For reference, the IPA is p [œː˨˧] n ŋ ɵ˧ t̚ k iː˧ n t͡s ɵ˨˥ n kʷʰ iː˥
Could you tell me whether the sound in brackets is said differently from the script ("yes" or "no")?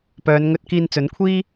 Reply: no